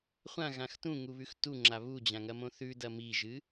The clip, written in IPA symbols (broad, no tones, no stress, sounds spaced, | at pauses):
χʷ ã ɣ ã x t ũ ŋ u β ʉ x t u ŋ͡ǁ a β u d͡ʑ ã ŋ ɐ m õ θ ʉ d ɐ m i ʒ ɨ